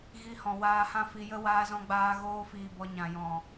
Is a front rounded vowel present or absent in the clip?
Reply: absent